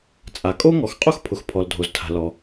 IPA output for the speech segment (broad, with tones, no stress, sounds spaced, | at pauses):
t͡sʼ a˩ kʼ o˥ ŋ ɔ˩ x qʼ o˥ x pʰ ʊ˩ x pʰ ɔ˩ l dʱ o˩ z tʰ a̤˩ l ɔ˩